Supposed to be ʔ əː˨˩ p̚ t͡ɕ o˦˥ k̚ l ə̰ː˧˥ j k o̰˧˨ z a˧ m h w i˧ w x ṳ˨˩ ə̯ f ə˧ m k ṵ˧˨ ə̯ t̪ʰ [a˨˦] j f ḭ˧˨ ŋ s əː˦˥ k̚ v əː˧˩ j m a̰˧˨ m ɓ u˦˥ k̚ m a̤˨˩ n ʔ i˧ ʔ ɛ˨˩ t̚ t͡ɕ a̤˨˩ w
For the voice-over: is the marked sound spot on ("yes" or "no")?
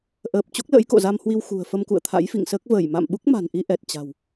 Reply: no